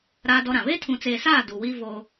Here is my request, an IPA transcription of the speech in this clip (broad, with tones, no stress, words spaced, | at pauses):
ɾaː˦dɔ˦ɾã˨ βe˦tʰũ˨t͡seː˨saː˦˨ du˨wi˦ vo˦